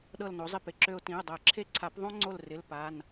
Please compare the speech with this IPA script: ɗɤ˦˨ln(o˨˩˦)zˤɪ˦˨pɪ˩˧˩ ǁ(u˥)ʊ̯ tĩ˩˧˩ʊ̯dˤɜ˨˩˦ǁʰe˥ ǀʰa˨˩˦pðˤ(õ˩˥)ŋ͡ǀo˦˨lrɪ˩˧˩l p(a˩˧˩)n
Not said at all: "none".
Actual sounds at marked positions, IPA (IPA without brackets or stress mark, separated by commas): o˩˥, ø˥, õ˥, a˩˧˩